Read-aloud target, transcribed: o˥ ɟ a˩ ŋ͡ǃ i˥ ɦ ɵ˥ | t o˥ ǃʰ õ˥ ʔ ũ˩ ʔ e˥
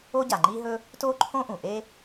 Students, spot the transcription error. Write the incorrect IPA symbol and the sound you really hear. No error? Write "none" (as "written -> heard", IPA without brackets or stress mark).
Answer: none